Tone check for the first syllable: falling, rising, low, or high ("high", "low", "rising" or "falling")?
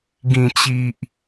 low